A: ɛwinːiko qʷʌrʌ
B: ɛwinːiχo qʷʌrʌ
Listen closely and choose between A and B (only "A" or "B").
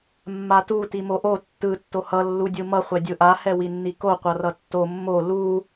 A